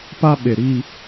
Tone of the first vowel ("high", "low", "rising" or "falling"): high